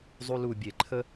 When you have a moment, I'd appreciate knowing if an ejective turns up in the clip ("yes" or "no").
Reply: no